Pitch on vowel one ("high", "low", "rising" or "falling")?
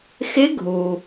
rising